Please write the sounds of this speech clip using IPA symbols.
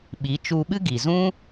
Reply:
ɓi˨˦ t͡ʃu˧ɓɨ˦ ɡi˨zũ˦

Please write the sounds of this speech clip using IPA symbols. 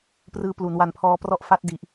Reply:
prɯː˦˥plu˩˦n wa˧npʰɔː˦˥prɔ˥˩ʔ fa˦˥t̚di˨˩ʔ

